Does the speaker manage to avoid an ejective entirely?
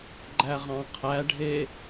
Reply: yes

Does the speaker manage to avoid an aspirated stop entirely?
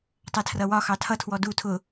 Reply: no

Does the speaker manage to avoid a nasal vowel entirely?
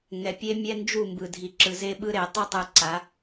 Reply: yes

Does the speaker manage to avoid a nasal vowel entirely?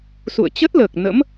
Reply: yes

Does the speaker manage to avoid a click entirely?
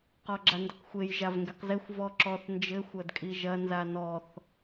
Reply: no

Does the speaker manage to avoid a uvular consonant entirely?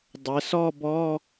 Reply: yes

